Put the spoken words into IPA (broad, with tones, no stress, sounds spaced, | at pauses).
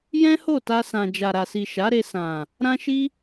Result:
j ɛ̃˦ h o˦˨ t a˧ s ã˨ d͡ʒ a˨ ɾ a˨ s i˨ ʃ a˨˦ ɾ e˧ s ã˨ | ɾ ã˦ ʃ i˦